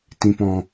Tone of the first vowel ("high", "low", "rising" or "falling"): low